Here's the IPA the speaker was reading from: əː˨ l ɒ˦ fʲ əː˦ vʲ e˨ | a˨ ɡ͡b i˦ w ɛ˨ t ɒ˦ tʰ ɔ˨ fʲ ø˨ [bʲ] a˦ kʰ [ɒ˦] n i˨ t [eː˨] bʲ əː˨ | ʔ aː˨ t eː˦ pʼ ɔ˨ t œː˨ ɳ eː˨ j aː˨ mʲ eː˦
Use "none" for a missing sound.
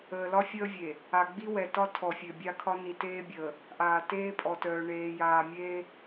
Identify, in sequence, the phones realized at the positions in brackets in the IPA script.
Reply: bʲ, ɒ˦, eː˦

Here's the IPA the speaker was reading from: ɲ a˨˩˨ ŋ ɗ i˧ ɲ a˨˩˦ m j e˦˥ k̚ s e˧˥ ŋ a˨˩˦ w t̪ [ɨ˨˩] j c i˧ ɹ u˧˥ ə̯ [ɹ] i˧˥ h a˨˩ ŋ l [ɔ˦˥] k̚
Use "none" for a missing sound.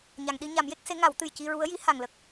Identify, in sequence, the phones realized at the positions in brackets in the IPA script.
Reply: ɨ˨˩, j, ə˦˥

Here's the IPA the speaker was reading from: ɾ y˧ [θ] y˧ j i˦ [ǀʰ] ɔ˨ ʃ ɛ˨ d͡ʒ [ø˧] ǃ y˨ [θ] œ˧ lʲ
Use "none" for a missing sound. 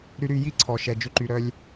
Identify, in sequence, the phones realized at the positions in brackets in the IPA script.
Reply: ɾ, ǀʰ, ø˧, ɾ

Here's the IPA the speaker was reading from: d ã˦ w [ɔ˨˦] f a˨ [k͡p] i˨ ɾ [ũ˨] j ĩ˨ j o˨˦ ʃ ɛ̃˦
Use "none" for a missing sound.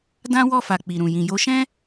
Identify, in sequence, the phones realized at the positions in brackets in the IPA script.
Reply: ɔ˦˨, k͡p, ũ˨

